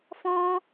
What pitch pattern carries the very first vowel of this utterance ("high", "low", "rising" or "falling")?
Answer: high